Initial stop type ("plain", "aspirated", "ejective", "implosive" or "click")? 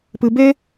plain